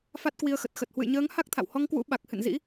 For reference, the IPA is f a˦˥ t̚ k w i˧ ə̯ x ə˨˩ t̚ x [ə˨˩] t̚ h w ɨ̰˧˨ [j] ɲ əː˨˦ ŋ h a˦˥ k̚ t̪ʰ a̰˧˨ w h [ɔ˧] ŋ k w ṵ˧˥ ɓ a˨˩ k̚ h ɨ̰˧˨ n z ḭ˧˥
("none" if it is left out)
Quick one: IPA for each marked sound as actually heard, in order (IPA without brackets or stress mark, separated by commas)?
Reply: ə˨˩, j, ɔ˧